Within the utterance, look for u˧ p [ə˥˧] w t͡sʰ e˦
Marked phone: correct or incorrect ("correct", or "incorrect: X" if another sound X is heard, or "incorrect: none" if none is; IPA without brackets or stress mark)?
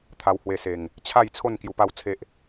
incorrect: a˥˧